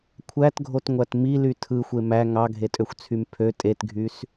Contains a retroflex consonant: no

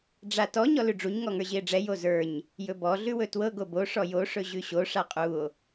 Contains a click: no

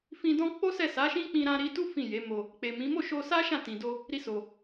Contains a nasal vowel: yes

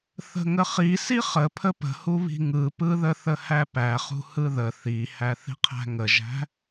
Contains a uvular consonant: yes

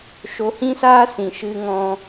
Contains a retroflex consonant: no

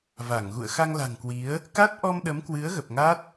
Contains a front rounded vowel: no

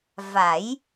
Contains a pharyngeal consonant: no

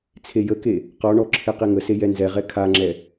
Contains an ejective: no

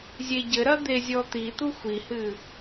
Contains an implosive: no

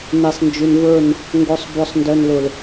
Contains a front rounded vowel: yes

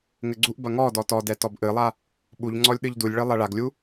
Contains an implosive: yes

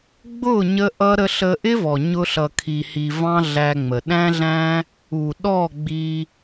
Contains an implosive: yes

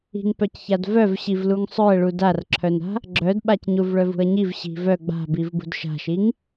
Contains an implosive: yes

